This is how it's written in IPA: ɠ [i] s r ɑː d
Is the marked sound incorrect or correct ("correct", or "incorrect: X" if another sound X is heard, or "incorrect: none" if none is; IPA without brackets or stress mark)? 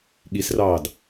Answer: correct